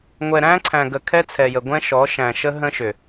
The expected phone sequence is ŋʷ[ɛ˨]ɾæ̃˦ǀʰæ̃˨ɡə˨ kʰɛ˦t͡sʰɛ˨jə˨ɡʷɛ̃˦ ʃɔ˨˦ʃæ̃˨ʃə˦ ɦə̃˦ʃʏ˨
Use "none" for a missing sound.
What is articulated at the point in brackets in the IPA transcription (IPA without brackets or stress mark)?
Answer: ɛ˨